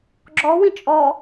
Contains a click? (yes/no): yes